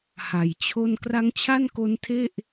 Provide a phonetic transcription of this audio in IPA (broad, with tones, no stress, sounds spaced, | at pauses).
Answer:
h a˨˩ j t͡ɕʰ o˥˩ n k r a˦˥ ŋ t͡ɕʰ a˥˩ n k o˦˥ n tʰ e˥˩ ʔ